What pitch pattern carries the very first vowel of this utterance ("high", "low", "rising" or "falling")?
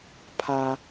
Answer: high